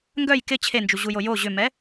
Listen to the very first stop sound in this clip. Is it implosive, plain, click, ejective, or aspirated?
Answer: plain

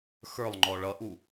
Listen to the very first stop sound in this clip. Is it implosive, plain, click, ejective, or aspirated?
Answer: click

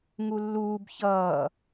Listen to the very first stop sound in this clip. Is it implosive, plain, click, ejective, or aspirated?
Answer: plain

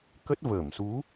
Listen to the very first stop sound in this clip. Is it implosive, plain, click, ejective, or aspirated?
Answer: plain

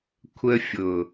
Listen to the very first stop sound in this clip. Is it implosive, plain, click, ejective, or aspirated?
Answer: aspirated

